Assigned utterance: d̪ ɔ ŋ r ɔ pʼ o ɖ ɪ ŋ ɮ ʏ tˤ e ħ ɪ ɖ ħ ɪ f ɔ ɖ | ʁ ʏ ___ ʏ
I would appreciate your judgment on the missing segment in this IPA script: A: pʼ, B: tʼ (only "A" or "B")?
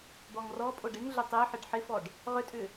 B